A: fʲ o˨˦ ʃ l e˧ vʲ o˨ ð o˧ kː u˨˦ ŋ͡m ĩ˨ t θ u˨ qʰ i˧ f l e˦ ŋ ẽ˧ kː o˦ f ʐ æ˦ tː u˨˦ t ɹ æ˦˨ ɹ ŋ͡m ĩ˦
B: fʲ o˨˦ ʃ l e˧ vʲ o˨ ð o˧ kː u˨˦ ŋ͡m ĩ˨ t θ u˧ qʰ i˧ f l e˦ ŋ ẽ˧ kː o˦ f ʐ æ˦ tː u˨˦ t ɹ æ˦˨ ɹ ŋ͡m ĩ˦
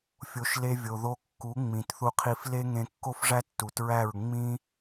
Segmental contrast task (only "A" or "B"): B